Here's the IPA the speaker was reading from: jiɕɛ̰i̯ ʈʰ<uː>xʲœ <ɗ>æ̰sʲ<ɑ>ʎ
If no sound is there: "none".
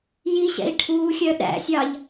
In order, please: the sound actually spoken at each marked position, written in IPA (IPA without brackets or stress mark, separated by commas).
uː, ɗ, ɑ